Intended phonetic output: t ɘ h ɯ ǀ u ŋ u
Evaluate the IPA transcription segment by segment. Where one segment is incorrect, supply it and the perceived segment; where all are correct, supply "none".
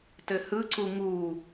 none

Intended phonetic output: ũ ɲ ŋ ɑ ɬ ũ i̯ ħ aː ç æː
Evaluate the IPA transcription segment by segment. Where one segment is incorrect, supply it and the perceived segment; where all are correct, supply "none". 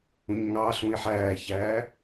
aː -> æː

